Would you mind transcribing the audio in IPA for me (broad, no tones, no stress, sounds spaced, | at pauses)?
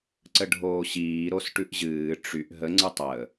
ǀ ə ɖʱ oː ɕ iː ɾ o s ʈ ʉ ʔ ʑ ɨː ʈ͡ʂ y ʔ ɦ ə ŋ͡ǀ ɨ tˤ əː